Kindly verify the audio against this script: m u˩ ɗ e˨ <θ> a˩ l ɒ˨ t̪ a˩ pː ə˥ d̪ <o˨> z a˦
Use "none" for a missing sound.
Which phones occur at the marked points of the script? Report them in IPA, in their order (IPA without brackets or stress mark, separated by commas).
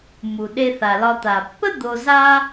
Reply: θ, o˨